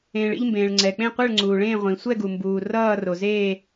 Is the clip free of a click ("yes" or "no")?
no